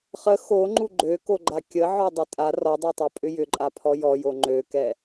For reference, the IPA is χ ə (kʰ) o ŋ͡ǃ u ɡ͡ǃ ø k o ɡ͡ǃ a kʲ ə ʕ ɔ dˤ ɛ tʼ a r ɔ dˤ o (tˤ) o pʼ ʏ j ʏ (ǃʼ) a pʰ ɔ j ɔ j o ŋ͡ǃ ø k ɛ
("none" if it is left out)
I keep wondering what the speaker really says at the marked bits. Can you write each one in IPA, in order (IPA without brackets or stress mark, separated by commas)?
x, tˤ, ǃʼ